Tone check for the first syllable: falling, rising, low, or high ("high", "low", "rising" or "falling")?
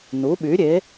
rising